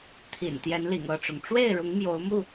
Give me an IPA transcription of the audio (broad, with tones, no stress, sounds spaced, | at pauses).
t̪ʰ ḭ˨˩ n t̪ j ɛ˨˦ n l ḭ˨˩ ŋ ɤ˥˨ ʈ͡ʂ ʊ˩ ŋ ʈ͡ʂ w e˥˨ ɪ̯ ɻ ʊ˨˦ ŋ m j o˨˦ ʊ̯ m u˥˨